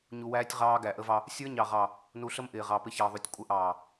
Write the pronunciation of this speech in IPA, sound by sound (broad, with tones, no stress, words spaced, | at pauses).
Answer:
ɲu˨wæː˦tʲ ʁɑː˦ɡæ˨ʔə˦vɑ˦ | sʲə˞˦ɲɑ˨ʁɑ˨ | nu˨ɬə˦m ʔɪː˨ʁɑ˨pɪ˦ çɑ˨ðˤu˨tʲ kʷʼə˦ʔɑː˨